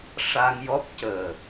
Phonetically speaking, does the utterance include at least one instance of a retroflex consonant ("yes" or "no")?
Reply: yes